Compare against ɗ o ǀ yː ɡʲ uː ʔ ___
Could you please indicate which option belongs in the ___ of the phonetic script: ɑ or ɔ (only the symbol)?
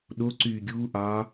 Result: ɑ